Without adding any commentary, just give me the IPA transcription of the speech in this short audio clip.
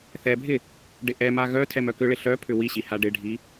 θ ɛ bʱ ɪ | ɖ ɪ ʔ ɛ m a ɣ œ tʰ ɛ m œ k ʏ ɭ ɪ ɬ œ pʰ ʏ w i ɕ i h a ɖ ɪ ɖʱ i

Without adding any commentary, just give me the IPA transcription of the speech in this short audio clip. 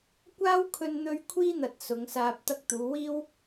kʷ aː˥ w kʰ ɵ˧ n n̪ ɵ˧ ɥ kʷʰ iː˥ n̪ ɐ˨ t̚ s ʊ˨˧ ŋ s aː˧ p̚ t̪ ɐ˧ k̚ t̪ uː˨˧ w iː˥ w

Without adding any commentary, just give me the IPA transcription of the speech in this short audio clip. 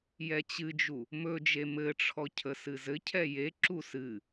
j ɛ t͡ɕ ɨ d͡ʒ u | m ɵ d͡ʒ e m ɘ ʈ͡ʂʰ ɔ cʰ ə s ɨ z ɘ cʰ ɛ j e ǁ u s ɨ

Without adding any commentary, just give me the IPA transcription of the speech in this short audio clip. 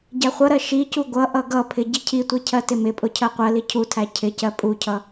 ɟ æ χʷ ʌ ɾ ɜ ʃ i c u ɡʷ ʌ ʔ ʌ ɡ ʌ pʰ ɪ ɟ i cʰ i tʷ i cʰ ɜ t ɪ m ɪ pʼ ʊ cʰ ɜ qʷ ɜ l i cʰ u tʰ æ cʰ ɪ c ɜ pʼ u cʰ ʌ

